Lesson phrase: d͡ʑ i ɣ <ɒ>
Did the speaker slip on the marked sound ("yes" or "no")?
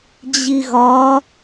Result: no